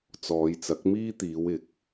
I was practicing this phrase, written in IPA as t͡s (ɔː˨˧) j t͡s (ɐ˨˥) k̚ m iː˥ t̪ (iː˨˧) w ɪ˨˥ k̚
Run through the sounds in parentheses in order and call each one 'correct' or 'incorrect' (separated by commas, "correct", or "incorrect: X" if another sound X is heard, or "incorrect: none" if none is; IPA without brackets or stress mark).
correct, correct, correct